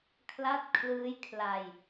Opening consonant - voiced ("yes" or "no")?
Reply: no